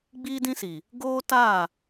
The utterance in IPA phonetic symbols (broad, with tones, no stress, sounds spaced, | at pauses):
ɡ͡b iː˦ d ĩ˦ s iː˨ | ɡ oː˦ t aː˦˨